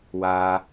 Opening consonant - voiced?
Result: yes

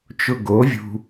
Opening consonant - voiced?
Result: no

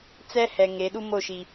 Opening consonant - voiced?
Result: no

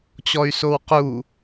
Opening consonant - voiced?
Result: no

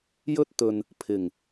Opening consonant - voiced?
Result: yes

